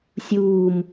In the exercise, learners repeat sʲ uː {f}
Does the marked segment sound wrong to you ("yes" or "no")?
yes